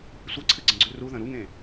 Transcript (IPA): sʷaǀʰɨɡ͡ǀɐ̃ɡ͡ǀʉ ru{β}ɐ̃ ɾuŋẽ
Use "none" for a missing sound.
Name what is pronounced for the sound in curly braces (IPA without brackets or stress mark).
ð